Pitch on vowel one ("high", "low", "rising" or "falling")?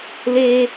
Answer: high